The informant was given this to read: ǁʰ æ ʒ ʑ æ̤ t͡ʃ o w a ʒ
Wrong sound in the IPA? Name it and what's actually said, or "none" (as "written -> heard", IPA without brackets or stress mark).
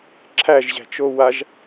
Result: none